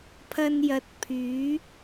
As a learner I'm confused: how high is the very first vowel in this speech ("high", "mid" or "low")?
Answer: low